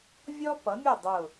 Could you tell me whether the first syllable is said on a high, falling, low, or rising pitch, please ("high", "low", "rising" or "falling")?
high